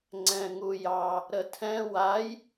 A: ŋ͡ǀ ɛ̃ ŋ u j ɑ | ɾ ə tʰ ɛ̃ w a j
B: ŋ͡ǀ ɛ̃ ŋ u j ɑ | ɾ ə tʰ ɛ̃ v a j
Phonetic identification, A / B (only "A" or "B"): A